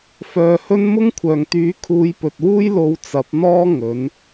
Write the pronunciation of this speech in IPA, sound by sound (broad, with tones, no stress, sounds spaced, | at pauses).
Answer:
f œː˨ h ɵ˧ n m ʊ˥ ŋ kʷʰ œː˨˩ ŋ t̪ yː˨˥ kʰ uː˨˧ j p ɵ˨ t̚ w uː˥ j l o˧ w t͡s ɐ˨˥ p̚ n̪ ɔː˥ ŋ ɵ˨˥ n